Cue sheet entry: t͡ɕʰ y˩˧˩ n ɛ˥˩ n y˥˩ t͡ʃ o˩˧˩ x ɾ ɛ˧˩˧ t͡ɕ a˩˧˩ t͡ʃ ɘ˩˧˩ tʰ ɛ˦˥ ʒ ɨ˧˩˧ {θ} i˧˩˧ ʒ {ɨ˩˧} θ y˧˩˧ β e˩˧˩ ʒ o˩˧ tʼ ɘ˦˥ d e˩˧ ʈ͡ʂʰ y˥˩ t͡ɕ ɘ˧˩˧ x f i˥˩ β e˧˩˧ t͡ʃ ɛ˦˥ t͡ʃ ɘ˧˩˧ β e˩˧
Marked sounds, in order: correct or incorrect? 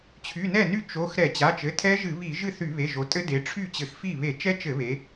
incorrect, incorrect

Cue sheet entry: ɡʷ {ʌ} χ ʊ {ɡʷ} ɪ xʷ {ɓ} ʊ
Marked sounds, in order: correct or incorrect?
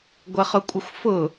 correct, incorrect, incorrect

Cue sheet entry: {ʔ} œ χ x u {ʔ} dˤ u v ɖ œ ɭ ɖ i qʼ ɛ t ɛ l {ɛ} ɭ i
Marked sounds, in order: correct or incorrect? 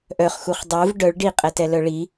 correct, incorrect, incorrect

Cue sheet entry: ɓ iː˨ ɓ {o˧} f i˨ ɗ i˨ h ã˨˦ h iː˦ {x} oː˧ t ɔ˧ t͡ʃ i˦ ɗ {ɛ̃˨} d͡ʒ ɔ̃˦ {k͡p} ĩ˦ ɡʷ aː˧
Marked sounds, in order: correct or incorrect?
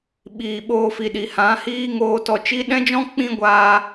incorrect, incorrect, incorrect, correct

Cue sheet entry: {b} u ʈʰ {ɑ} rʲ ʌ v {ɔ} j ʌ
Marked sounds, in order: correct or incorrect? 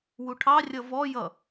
incorrect, correct, correct

